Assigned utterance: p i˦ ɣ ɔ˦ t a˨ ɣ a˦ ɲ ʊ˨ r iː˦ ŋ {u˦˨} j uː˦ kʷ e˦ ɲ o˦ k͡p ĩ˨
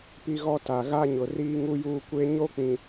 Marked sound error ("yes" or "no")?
yes